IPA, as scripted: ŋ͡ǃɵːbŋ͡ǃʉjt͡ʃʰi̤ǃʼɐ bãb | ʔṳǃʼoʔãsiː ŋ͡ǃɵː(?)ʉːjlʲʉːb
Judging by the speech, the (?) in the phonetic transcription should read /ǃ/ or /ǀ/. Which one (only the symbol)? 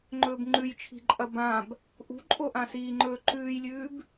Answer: ǃ